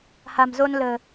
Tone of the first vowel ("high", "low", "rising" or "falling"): low